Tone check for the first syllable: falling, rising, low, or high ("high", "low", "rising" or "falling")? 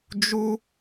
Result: high